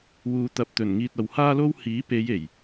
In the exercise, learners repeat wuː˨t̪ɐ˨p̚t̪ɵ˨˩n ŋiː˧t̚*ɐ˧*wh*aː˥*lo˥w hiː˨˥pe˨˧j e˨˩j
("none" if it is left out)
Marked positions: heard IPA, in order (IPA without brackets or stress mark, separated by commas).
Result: ɐ˨, aː˥